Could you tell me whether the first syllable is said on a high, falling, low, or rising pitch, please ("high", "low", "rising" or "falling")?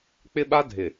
high